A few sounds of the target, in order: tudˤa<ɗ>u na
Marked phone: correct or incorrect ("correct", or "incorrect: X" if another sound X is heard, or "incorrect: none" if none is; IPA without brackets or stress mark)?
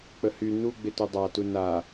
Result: incorrect: t